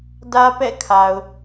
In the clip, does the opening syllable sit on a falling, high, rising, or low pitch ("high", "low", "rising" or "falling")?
high